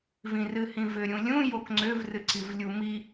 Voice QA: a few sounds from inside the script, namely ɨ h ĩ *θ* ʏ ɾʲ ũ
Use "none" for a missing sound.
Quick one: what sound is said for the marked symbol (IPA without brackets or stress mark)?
v